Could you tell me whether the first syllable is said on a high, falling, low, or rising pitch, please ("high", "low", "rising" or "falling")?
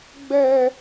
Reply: high